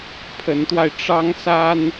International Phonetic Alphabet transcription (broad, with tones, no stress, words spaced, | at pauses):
pʰə˧˥nt̪wa˧ɪ̯ ʈ͡ʂɑ˥ŋsa˥n